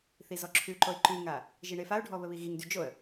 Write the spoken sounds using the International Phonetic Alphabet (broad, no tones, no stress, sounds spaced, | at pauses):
θ i z ɔ ǁʰ ʉ ǃ o ɪ̯ ǃ ʉ ŋ a | ʒ i ɳ e f a ʊ̯ ɖʱ ɔ β ə β i ɣ i ŋ d y d͡ʒ o ə̯